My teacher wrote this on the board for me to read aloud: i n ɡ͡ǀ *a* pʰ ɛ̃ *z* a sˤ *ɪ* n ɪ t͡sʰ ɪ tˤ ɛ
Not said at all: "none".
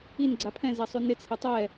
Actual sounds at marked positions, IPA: a, z, y

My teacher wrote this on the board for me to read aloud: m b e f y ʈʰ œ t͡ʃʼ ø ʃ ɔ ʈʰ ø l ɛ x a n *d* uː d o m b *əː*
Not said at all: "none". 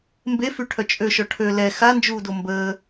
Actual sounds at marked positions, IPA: d͡ʒ, əː

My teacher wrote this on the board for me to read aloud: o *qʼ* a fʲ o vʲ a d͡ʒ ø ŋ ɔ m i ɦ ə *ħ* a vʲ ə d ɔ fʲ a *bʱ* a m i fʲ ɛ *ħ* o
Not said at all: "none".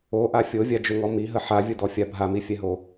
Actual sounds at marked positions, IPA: ʔ, ħ, bʱ, ɦ

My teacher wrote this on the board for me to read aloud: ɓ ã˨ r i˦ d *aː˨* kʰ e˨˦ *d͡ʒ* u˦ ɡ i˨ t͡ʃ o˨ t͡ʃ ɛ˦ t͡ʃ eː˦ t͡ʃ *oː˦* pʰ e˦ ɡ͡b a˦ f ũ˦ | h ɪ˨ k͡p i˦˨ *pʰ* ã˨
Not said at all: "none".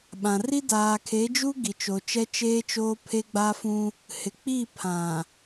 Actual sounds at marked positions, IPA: aː˨, d͡ʒ, oː˦, pʰ

